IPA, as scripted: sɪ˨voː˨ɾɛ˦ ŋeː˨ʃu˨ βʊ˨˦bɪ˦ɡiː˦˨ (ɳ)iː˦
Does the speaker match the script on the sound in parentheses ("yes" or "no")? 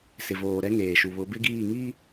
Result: no